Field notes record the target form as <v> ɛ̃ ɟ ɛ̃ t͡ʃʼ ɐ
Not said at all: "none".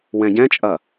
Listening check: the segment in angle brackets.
w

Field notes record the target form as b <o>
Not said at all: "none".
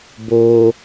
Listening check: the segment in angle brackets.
o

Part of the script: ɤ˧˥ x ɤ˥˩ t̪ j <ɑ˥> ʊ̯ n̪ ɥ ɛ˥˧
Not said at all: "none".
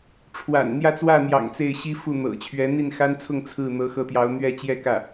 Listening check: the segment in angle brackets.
ɑ˧˥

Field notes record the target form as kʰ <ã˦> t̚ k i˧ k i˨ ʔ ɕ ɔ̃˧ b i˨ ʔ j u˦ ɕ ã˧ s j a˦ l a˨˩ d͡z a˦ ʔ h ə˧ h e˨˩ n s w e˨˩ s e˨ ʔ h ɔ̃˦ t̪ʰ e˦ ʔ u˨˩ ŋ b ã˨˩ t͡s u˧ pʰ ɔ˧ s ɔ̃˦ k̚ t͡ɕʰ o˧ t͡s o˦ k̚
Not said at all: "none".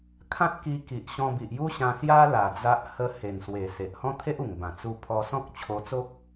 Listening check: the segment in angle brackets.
ã˦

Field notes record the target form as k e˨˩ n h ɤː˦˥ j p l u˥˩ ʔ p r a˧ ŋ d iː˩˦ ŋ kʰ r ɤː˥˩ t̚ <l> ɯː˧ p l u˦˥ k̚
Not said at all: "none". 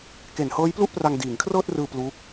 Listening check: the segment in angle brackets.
r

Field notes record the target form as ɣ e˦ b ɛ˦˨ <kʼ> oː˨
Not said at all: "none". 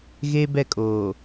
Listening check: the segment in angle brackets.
kʼ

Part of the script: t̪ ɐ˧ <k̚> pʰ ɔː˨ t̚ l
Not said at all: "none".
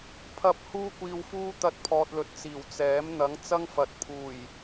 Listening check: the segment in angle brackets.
t̚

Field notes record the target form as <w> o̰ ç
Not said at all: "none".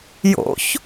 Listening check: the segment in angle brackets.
j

